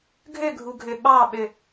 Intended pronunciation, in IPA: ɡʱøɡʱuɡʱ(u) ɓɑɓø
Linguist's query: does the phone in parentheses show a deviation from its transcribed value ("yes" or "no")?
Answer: yes